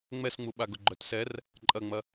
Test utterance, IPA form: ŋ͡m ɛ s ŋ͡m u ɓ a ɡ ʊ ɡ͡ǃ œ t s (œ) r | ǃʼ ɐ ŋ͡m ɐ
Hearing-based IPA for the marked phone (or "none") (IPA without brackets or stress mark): ɛ